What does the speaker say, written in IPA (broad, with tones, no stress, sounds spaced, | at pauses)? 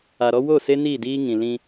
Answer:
a˨ ɾ ɔ˦ w o˦˨ s e˦ n i˦˨ d iː˦ ŋ ĩ˨ l ĩ˦